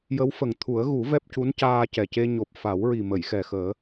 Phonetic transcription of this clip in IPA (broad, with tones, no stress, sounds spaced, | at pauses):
j ə˧˥ w f ə˨˩ ŋ t̪ʰ u˨˩˦ ə̯ ɣ u˨˩˦ v ɛ˦˥ p̚ c u˧˥ n c aː˧ c ɛ˨˩ c e˧ ɲ o˨˩ p̚ f a˨˩˦ w ɹ i˨˩ m ə˨˩˨ j x ɛ˨˩ x əː˨˩˦